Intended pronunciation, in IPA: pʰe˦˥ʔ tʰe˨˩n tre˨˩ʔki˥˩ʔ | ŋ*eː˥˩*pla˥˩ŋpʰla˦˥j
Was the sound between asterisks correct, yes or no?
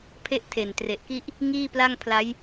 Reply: no